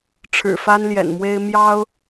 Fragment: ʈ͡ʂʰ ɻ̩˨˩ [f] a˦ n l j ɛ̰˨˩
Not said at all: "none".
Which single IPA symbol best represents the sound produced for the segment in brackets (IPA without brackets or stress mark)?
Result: f